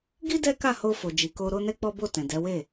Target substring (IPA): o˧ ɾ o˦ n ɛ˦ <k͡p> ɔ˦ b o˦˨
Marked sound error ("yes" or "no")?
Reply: no